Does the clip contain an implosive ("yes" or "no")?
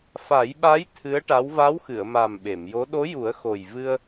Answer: yes